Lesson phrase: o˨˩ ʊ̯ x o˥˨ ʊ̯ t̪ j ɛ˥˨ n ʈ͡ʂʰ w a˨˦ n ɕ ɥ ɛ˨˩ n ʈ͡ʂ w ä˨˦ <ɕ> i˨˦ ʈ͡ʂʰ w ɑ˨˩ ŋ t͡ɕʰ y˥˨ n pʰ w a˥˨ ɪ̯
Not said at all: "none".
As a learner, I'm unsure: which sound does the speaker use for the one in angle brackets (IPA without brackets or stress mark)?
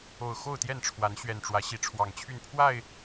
ɕ